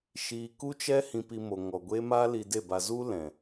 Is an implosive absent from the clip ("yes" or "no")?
yes